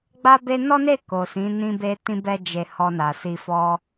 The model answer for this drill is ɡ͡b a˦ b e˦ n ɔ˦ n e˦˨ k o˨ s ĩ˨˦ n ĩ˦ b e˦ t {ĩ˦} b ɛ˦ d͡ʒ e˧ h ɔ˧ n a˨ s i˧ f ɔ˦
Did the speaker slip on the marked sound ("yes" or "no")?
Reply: no